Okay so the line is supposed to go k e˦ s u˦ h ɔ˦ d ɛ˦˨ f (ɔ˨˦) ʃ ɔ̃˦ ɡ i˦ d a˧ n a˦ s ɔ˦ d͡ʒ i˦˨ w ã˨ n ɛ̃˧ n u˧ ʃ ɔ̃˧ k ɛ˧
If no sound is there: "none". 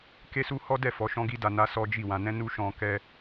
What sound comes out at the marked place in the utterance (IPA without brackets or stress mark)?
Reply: ɔ˨˦